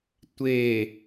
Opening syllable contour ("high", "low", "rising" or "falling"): low